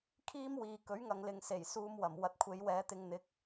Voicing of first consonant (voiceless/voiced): voiceless